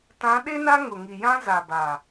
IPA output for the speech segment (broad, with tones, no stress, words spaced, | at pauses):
tã˨˦ɗe˦na˦ ŋʊ˨ŋi˨jã˦ za˨ba˨